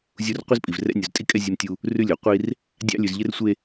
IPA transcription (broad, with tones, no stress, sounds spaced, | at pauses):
zʲ u˦ r qʷ i˦ z pʼ i˨ v r ɛ̰˦ nʲ u˨ z tʼ i˦ kʼ ɛ˦ zʲ e˦ m tʲ u˦ | r ʉ˦ lʲ o˨ qʷ i˦ r | dʲ ɑ̰˦ lʲ ʉ˨ z ʎ ɪ˦ r sʷ e˦